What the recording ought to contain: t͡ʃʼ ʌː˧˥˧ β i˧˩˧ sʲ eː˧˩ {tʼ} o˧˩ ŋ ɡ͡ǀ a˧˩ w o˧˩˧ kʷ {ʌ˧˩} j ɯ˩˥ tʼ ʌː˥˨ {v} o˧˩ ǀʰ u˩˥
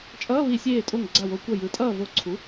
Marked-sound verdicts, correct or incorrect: correct, correct, correct

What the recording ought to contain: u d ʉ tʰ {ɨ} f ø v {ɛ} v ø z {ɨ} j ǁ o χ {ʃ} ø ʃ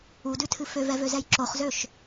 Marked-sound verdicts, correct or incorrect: correct, correct, incorrect: ɛ, incorrect: z

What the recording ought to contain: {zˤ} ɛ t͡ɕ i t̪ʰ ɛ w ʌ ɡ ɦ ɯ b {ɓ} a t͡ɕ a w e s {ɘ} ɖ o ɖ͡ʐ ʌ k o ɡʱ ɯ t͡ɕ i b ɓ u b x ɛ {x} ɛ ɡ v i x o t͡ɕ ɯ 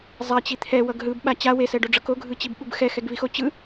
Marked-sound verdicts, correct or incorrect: correct, correct, incorrect: ɛ, correct

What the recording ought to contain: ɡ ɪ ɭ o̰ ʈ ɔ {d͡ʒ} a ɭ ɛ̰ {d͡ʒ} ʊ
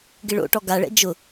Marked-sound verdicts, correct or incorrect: incorrect: ɡ, correct

